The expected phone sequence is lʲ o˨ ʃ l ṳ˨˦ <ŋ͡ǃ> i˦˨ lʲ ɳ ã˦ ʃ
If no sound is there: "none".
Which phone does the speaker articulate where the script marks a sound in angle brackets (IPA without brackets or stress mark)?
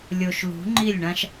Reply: ŋ͡ǃ